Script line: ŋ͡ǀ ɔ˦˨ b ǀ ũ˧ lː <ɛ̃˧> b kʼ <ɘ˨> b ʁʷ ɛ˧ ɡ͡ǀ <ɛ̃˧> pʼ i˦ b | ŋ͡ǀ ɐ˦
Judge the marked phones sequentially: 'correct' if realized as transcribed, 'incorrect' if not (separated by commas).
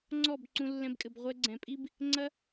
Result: correct, correct, incorrect